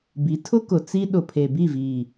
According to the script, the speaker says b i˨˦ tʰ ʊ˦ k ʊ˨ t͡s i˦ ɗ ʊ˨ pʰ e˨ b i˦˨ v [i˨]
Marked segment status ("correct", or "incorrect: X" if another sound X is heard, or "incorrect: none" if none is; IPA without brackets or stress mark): incorrect: iː˨